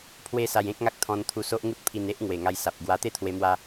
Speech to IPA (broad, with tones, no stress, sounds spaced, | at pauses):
pʰ w e˦ s a˧ j ẽ˦ k̚ ŋ a˦ k̚ t̪ʰ ɔ̃˧ n t̪ʰ u˧ s o˦ ʔ ŋ u˦ t̚ pʰ i˧ n e˦ ʔ ŋ w e˨˩ ŋ a˧ j s a˨ p̚ ɡ w a˧ t̪ e˥˧ t̪ʰ w e˧ m w a˧